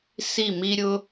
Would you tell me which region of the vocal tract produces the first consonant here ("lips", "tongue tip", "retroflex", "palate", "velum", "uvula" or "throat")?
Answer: tongue tip